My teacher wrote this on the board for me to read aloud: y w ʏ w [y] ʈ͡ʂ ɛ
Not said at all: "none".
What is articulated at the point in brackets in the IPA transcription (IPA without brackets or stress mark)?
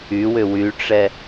y